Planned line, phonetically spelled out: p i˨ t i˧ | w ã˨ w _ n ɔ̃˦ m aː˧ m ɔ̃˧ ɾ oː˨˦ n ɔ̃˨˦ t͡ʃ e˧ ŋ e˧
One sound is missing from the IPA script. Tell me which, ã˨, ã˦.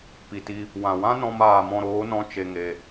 ã˦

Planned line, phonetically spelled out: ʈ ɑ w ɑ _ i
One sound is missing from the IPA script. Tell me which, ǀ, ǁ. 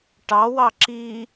ǁ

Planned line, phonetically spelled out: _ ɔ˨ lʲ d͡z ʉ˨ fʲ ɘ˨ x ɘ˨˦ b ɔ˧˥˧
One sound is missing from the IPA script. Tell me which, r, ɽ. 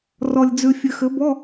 r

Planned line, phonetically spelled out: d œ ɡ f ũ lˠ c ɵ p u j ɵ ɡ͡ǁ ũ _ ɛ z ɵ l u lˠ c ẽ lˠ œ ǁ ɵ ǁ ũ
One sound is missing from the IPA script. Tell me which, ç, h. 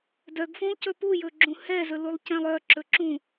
h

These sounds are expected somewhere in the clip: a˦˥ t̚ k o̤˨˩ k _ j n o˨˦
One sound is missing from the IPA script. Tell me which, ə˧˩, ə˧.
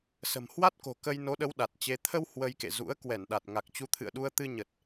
ə˧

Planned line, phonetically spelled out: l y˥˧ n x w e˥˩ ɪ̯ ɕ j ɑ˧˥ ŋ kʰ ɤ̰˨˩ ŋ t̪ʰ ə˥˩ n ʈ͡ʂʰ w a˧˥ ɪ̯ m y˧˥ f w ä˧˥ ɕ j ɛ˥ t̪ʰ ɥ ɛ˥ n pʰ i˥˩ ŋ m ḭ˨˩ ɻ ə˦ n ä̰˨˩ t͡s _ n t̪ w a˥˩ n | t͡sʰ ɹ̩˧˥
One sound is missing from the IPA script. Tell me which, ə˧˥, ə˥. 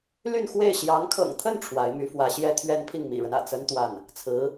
ə˥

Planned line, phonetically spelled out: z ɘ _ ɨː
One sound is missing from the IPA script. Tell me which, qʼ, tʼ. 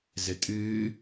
tʼ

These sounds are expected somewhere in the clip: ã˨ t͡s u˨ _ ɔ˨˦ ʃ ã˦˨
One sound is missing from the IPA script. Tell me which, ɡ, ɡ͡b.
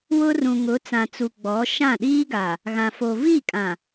ɡ͡b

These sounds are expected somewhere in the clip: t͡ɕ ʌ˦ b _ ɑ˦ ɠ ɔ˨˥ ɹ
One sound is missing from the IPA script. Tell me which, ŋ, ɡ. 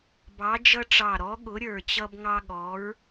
ŋ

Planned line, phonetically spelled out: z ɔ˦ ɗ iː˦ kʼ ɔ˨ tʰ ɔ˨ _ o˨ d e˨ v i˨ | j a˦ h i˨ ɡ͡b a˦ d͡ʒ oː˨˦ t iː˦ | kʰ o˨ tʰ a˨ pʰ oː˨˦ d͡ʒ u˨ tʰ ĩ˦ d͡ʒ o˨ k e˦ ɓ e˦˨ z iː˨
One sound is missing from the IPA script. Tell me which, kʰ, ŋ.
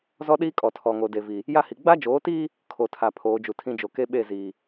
ŋ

